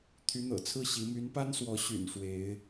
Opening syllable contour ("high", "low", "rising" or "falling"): rising